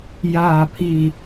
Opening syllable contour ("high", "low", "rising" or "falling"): falling